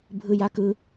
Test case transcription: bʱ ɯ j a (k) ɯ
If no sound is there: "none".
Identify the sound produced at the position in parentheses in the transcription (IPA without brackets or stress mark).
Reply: k